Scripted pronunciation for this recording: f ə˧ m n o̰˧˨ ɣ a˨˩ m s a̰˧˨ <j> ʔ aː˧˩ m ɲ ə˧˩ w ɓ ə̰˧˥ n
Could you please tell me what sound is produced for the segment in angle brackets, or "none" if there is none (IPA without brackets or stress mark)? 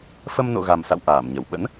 w